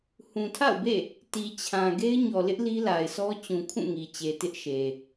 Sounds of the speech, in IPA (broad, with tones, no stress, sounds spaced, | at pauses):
h ũ˨ tʰ a̰˦˨ ʊ̯ b ḛ˦˨ | t i˨ t͡ɕʰ ã˨ ɡ e˦ ɪ̯ ɲ ɔ˨ l ɪ˦ ʔ l i˦ l a˨ ɪ̯ s ɔ˦ t͡ɕ ũ˨ kʰ ũ˦˨ ŋ i˨ t͡ɕ e˨ t ɪ˦ ʔ ʃ e˨